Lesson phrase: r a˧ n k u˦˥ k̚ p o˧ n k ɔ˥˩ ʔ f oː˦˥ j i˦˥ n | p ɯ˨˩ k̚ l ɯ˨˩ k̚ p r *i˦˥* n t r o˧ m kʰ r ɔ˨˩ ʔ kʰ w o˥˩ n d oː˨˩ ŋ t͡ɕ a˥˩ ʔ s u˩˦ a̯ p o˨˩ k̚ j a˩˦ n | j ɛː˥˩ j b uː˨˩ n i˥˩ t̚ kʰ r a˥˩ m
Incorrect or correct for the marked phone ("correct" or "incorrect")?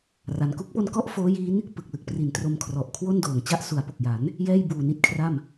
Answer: incorrect